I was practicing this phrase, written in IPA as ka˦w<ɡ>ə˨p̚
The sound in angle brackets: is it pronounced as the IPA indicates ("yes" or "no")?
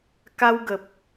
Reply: yes